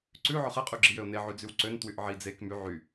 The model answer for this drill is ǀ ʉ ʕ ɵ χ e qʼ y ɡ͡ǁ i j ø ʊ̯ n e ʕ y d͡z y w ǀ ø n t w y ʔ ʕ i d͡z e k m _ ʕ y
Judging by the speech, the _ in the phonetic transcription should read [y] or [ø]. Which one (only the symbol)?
y